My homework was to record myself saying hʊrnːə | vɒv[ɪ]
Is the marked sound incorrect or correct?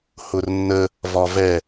incorrect